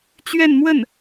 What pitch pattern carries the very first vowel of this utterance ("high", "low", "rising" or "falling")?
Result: falling